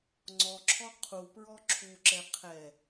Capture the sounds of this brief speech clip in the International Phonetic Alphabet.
ŋ͡ǀ ɔ ǁʰ ɔ qʰ u p ɹ ɔ ǁʰ u ǁ ɛ qʰ ɛ

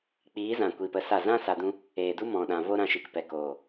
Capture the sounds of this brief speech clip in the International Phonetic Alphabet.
k͡p iː˨˦ z ã˨ kʷ i˨ p ə˧ s a˦˨ z ã˦ s a˧ d ũ˦ | eː˨ d u˦ m ɔ̃˨ ɗ ã˨ v o˦ ɾ ã˧ ʃ i˨ k p ɛ˨ k oː˨

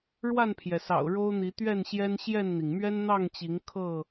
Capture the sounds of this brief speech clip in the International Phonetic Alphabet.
ɻ w a˥˨ n pʰ j ɛ˩ s ɑ̰˨˩ ʊ̯ ɻ o˦ ʊ̯ n̪ i˨˦ t̪ ɥ ɛ˥˨ n ɕ j ɛ˦ n ɕ j ɛ˥˨ n n̪ i˩ ŋ m ɥ ɛ˦ n n̪ ɑ˥˨ ŋ t͡ɕ i˨˦ ŋ kʰ ɤ˥˨

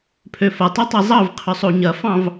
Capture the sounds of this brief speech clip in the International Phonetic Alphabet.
pʰ ø f ɐ tˤ ø tˤ i zˤ ɑ v qʰ ʏ sˤ o ɲ ɐ f ɑ̃ v

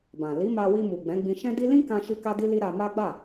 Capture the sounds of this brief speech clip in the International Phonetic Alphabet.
b ã˨ l i˨˦ m a˧ w i˧ m u˨ ɡ͡b ɛ̃˨˦ ɡ͡b ĩ˧ ʃ ɛ̃˦ d i˦ l ĩ˦ k ã˧ ʃ i˧ k a˦ d i˦ l i˦ ɾ a˧ m a˦ ɡ͡b a˦˨

